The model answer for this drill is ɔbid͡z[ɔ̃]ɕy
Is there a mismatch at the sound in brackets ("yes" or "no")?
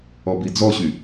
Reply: yes